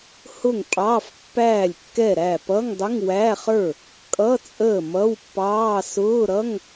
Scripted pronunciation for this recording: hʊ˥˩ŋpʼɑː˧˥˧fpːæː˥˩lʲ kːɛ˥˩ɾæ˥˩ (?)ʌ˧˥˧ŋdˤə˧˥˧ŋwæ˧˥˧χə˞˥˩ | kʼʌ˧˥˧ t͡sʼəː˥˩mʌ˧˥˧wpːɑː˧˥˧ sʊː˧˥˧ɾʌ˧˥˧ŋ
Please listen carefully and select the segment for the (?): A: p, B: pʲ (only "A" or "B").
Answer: A